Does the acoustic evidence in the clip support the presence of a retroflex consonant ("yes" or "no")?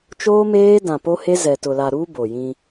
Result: no